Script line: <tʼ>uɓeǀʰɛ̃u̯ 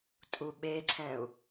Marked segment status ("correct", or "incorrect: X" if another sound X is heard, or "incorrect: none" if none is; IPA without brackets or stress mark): correct